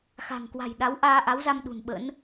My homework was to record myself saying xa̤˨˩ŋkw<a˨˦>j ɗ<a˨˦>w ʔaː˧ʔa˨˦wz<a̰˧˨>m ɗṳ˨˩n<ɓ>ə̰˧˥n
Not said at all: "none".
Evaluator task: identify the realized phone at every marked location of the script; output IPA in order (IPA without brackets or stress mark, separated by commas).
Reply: a̤˨˩, a˨˦, a˧, ɓ